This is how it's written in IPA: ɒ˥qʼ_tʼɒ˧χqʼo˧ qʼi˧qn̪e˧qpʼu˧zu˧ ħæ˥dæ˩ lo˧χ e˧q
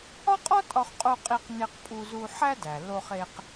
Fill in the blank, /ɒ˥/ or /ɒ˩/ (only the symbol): ɒ˥